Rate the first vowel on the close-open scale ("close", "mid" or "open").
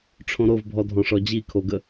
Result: mid